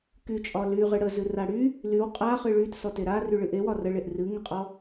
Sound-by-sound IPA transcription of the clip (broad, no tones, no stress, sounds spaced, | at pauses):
k y t͡ʃʼ ɒ l y ʁ ɨ ɽ ə z ɨ r a ɽ y | l y w qʼ a χ ɨ ɭ y t s ɔ t e ɾ a r y ɭ ɨ ʔ e w ɒ r ə ɭ e ʔ r ɨ ŋ ə qʼ ɔ